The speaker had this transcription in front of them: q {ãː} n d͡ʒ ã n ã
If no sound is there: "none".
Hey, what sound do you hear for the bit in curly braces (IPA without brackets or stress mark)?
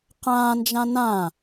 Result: ãː